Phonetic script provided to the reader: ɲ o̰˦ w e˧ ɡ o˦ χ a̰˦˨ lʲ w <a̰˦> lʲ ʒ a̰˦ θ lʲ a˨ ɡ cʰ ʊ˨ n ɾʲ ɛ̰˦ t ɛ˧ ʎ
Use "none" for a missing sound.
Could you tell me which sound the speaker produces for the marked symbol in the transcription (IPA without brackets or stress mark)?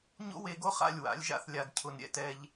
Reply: a̰˨˦